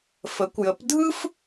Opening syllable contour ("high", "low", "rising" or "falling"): rising